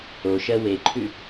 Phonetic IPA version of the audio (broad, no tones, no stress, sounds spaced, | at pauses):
o ʃ ɜ w e ǃʰ ʉ